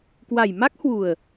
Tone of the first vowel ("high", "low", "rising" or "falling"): low